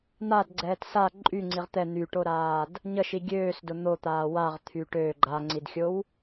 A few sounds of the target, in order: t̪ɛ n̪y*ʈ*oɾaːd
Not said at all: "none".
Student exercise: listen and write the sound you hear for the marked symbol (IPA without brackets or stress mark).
ʈ